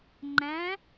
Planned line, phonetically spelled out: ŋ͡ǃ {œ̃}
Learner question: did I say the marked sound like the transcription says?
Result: no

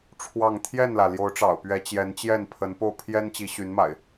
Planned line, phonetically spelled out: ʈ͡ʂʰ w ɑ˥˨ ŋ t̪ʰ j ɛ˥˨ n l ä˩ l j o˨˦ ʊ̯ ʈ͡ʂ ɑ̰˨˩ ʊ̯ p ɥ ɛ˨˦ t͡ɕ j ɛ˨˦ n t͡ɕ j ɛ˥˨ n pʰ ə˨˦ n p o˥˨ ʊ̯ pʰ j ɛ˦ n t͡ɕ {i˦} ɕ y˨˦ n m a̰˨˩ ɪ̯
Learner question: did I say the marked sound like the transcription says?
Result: no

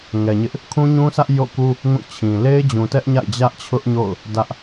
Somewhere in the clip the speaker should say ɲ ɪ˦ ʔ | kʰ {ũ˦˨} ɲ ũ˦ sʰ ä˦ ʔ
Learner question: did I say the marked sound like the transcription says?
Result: no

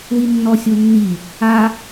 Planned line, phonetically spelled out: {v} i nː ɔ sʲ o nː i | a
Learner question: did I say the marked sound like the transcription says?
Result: no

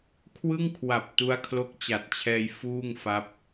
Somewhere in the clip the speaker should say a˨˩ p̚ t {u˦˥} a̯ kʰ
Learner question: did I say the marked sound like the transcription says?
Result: yes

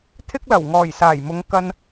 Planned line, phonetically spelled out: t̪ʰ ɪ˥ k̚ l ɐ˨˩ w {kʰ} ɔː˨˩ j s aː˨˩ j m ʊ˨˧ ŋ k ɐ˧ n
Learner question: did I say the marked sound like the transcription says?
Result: no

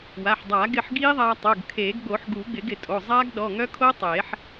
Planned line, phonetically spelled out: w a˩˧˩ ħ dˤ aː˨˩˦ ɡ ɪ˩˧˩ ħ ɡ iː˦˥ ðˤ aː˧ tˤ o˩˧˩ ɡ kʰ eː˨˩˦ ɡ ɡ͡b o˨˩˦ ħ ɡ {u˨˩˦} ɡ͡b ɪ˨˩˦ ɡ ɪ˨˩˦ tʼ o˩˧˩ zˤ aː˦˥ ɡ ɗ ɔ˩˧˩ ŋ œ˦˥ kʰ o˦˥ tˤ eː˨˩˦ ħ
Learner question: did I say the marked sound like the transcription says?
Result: yes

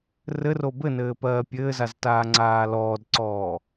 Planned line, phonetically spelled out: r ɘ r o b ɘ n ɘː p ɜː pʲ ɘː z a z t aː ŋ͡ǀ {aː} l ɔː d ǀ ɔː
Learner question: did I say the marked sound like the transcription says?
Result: yes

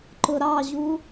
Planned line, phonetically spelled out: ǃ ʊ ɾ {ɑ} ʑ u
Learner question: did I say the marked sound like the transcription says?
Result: yes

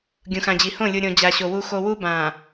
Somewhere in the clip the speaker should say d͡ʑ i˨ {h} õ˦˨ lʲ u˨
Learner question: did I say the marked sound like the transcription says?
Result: yes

